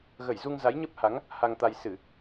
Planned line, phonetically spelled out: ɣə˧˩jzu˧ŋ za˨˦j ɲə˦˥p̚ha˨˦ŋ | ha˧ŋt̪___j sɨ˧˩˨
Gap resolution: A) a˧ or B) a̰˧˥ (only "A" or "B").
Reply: A